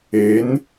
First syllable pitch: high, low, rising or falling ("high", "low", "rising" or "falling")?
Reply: rising